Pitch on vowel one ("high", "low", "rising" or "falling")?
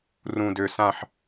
low